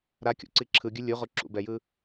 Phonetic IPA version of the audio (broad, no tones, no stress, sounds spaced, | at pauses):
ɾ a kʲ o̰ ǀ i ǁʰ ɯ ɡʲ ɯ lʲ u ʁ o ǁ ṵ b ɛ j ɯ